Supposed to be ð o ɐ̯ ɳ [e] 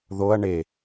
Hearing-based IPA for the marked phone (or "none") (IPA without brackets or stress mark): e